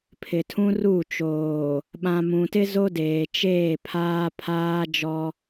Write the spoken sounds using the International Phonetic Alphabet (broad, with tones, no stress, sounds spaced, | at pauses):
pʰ ɪ˨ tʰ ũ˦ r u˦˨ t͡ʃ oː˨ | ɓ ã˨ m ũ˨ t ɪ˦ z o˦ d eː˨ t͡ʃ eː˦˨ pʰ aː˦ pʰ aː˦ d͡ʒ ɔ˦